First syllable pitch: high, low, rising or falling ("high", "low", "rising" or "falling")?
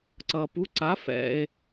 low